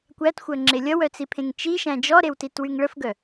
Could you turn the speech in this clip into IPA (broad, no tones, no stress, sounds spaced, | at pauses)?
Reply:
kʷ æ t xʷ œ ŋ͡ǁ e lʲ ʌ w œ t͡s i pʰ ẽ ŋ t͡ʃ i ʃ æ̃ d͡ʒ ɔ ɾ e w t i t w y ŋ ɭ ə f ɡ œ